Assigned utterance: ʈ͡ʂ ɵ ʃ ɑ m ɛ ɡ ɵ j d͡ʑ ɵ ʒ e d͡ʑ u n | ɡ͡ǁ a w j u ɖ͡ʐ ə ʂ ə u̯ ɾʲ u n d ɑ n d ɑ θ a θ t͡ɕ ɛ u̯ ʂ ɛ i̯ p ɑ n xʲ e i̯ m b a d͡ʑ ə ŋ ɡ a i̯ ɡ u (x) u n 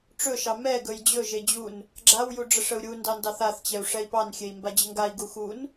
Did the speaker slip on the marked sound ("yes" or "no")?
no